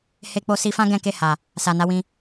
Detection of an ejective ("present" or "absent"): absent